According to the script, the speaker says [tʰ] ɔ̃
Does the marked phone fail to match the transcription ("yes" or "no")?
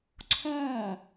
yes